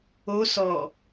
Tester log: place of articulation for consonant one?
alveolar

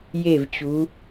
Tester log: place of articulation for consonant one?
palatal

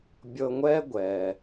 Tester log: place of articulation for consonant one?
labial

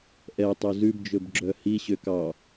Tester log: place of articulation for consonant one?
glottal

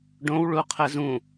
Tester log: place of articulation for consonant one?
retroflex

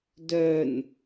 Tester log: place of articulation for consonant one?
alveolar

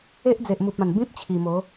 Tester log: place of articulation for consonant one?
glottal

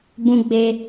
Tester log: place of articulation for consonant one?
labial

